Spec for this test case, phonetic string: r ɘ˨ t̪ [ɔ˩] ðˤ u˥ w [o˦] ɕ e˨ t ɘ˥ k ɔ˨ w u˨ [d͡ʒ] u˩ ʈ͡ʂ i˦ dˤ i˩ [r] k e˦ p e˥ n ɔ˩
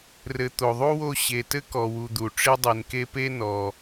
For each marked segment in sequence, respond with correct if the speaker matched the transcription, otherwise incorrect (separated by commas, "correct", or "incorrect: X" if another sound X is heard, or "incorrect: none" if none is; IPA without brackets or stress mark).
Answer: incorrect: o˩, correct, incorrect: d̪, incorrect: n